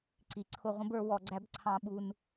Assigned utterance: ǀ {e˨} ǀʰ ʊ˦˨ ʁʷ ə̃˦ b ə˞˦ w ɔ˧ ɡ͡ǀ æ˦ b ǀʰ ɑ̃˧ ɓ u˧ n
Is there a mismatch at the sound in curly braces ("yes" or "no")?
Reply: yes